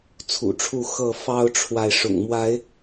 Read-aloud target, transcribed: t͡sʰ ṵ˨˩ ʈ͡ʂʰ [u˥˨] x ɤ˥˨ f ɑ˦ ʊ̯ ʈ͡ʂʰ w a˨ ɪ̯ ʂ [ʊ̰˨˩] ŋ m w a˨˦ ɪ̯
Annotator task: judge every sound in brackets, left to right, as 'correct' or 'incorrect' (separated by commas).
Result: correct, correct